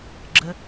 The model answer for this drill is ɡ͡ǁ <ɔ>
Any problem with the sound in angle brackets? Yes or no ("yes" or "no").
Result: yes